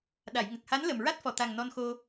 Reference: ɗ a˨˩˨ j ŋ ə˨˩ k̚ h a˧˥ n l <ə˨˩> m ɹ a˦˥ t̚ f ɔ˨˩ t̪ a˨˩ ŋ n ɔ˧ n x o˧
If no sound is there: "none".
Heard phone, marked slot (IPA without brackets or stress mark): ə˨˩